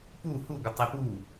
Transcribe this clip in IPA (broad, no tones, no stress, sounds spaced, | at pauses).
p u h u ɡʷ ɪ tˤ i p u